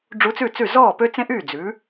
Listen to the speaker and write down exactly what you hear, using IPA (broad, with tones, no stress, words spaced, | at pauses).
ɖ͡ʐu˧˥t͡sʉ˥˩t͡sʉ˥˩ zɔː˥˩pø˥t͡sẽ˥ʔyː˥˩ d͡zʉ˩˥